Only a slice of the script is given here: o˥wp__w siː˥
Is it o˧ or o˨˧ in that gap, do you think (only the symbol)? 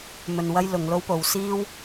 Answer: o˨˧